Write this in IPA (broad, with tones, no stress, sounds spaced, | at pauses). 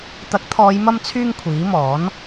t̪ ɐ˨˥ k̚ t̪ʰ ɔː˨˧ j m ɐ˧ m t͡sʰ yː˧ ŋ kʷʰ iː˨˥ m ɔː˨˥ n